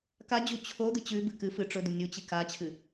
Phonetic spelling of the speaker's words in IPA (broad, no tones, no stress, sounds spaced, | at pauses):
k a d͡ʑ u t͡ɕʰ o d̪ ɨ t͡ɕ ʉ b ɨ k ɨ f ɨ ʈ͡ʂ ɵ d̪ u nʲ u t͡ɕ i k a t͡ɕʰ ɨ